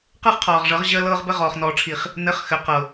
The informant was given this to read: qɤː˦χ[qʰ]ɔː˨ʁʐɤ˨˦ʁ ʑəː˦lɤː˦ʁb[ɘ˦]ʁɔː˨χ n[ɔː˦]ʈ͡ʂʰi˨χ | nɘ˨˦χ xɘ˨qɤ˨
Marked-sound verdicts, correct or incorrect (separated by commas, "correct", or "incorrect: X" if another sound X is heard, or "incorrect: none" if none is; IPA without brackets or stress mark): correct, correct, incorrect: ɔː˨